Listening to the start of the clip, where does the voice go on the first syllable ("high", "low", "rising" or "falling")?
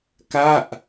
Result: falling